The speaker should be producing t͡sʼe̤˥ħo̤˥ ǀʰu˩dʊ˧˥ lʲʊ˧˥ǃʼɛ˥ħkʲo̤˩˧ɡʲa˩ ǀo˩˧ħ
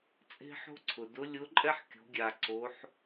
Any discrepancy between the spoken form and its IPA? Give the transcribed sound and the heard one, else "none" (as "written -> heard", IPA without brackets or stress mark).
u˩ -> ʊ˩